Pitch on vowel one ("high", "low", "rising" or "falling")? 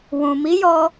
low